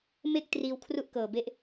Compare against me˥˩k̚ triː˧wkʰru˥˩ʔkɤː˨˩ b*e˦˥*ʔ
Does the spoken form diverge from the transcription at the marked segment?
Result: no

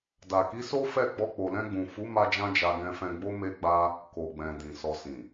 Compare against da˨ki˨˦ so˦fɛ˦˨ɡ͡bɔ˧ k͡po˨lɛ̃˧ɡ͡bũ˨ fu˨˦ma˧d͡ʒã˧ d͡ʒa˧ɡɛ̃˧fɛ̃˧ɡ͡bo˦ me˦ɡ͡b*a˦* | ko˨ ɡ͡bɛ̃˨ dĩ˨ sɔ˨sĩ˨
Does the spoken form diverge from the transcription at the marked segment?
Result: no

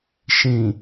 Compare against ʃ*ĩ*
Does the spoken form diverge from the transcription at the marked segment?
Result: no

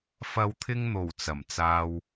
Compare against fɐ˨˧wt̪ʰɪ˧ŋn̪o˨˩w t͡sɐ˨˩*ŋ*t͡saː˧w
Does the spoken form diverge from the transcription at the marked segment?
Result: yes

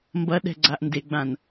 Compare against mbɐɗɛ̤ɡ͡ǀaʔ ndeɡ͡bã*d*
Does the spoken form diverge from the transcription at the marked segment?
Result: yes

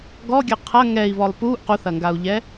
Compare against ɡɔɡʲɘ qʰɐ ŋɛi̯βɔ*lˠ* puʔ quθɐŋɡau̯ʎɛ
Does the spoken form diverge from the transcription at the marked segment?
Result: no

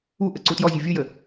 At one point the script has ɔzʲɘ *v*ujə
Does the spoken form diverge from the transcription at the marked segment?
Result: yes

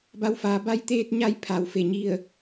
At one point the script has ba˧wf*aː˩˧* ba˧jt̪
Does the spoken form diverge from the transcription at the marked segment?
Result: no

